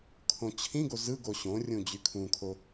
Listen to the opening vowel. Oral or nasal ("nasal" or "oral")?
nasal